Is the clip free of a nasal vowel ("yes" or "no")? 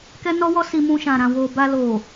no